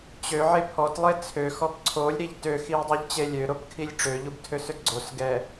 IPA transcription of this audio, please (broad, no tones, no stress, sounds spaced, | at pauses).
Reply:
t͡ɕ ø ʕ e pʰ ɔ t lˠ e t͡sʰ ø x ɔ p ǀʰ o lʲ ɾ i ʎ t ø x i w dˤ u ʎ t͡ɕ e lʲ ø ɾ o p kʰ i lʲ ʈ͡ʂ ø ʎ u b tʰ ø s ø ɡ͡ǀ o s ɡ ɛ